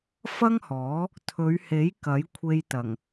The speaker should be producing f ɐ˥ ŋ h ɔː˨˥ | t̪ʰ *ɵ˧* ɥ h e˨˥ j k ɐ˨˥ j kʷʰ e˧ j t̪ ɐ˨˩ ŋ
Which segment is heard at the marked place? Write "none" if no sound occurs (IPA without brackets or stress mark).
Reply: ɵ˨˧